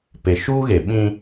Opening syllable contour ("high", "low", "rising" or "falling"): low